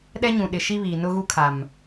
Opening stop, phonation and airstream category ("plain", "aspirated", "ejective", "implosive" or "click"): implosive